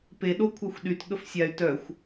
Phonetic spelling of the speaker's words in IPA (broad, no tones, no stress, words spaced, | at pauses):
pe ɗokʷʰaxʷɗyt ɠəfsʲay̯ tœxʷ